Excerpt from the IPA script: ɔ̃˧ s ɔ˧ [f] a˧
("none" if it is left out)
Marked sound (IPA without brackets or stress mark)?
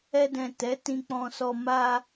m